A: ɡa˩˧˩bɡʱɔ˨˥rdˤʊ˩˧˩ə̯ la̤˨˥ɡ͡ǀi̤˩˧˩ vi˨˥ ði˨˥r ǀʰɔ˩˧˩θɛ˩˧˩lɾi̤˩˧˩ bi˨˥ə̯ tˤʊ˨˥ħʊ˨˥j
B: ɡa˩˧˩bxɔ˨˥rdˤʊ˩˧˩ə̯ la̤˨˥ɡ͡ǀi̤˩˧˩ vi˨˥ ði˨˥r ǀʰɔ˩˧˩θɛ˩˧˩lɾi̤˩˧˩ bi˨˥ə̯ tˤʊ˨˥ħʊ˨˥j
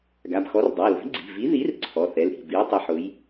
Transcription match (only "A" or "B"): B